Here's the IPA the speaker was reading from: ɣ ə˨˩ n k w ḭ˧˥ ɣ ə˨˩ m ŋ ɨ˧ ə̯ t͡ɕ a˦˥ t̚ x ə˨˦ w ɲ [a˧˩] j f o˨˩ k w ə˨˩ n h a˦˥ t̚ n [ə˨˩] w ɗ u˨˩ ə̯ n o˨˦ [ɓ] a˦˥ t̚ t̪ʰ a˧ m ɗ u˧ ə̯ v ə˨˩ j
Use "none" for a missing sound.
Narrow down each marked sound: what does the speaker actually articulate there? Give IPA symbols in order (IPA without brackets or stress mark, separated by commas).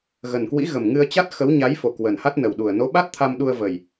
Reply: a˨˦, ə˨˩, ɓ